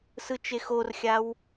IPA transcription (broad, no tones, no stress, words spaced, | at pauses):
sɯt͡ʃexorxʲaw